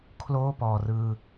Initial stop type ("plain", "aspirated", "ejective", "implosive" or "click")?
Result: aspirated